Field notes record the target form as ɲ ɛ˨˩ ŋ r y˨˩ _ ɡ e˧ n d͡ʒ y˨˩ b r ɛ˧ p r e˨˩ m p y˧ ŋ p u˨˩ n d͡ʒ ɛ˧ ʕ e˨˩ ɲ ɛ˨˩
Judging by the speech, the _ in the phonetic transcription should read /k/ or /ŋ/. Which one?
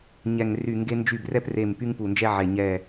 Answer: ŋ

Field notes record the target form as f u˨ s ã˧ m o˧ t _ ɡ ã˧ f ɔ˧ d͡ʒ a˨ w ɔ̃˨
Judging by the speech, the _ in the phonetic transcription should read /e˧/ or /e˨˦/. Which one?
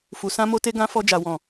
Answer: e˧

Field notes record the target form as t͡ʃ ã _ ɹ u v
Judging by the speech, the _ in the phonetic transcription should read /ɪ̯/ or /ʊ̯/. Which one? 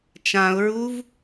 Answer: ʊ̯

